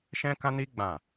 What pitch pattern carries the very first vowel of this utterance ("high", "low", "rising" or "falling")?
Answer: high